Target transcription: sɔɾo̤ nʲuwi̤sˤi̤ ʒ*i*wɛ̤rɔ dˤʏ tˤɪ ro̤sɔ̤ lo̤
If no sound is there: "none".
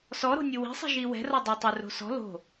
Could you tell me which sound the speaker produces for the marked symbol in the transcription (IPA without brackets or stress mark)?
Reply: i